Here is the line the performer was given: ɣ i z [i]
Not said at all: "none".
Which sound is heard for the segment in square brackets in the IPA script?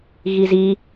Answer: i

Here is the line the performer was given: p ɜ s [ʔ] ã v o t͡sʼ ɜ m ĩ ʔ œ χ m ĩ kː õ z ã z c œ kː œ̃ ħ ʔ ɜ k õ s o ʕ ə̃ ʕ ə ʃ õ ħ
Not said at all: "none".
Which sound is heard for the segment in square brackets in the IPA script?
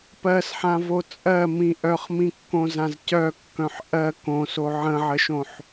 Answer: ħ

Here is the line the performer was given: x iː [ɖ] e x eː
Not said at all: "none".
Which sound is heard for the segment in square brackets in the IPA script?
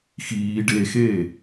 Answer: ɖ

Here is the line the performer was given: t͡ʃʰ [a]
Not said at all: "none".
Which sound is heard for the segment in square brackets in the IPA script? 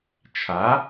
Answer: a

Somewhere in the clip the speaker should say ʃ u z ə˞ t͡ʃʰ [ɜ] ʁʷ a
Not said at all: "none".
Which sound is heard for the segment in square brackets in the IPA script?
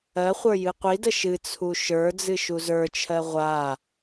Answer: ɜ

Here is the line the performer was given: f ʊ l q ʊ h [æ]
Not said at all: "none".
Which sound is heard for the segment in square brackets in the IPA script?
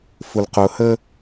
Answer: ə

